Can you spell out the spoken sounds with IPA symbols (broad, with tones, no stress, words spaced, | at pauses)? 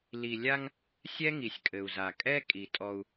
li˨lʲa˦ŋ | sʲɛ˦ŋi˨sʲkʼɘ˨u̯za˨ kʼɛ˦ kʼi˨tʼɔ˦u̯